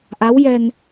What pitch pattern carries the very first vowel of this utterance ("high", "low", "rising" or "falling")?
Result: rising